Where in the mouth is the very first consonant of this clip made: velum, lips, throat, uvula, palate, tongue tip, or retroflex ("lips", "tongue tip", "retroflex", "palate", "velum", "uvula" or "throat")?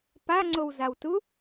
lips